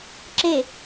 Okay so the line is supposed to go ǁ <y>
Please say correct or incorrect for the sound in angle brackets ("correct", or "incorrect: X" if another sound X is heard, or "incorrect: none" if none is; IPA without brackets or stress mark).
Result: incorrect: e